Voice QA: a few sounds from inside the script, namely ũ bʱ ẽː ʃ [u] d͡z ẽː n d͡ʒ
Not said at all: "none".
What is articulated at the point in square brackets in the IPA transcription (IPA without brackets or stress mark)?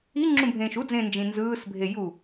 u